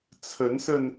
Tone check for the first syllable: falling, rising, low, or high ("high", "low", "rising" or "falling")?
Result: rising